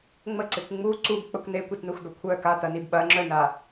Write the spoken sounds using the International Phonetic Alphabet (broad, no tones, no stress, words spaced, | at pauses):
ŋ͡məǀekʷ ŋ͡mu ǀubk͡pəkʷ nekʷitnuxbœ kʷʰœ kat̪ɐnib ɓɐŋ͡ǁœna